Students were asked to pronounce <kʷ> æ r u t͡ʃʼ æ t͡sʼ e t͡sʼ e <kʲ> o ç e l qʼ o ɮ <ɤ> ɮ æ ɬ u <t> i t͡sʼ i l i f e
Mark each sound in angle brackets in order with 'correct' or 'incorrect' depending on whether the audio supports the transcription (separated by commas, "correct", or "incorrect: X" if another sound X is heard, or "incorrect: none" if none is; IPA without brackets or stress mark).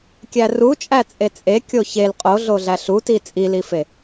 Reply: incorrect: kʲ, correct, incorrect: o, correct